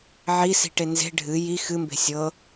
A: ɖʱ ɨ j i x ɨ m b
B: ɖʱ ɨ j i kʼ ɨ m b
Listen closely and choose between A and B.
A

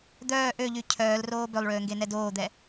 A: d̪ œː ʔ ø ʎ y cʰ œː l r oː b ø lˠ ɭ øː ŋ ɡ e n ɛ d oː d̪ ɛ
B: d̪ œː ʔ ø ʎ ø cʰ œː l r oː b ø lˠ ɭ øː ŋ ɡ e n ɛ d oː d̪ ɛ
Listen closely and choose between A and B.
A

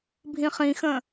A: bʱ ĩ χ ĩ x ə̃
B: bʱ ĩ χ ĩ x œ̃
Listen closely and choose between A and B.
A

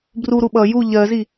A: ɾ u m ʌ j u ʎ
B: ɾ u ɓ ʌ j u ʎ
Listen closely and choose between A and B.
B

